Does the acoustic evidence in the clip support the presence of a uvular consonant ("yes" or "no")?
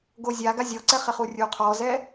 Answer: yes